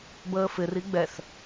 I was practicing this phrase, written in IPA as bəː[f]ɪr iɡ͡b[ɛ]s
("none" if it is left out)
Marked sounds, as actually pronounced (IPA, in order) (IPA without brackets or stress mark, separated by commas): f, ɛ